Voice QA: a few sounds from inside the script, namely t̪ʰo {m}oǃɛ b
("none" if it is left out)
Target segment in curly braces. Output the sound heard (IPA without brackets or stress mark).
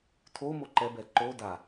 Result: m